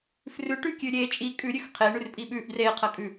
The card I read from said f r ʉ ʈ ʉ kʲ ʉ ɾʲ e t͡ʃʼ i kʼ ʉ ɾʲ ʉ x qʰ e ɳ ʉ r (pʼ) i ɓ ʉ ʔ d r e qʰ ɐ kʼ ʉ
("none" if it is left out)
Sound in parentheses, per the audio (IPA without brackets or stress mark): pʼ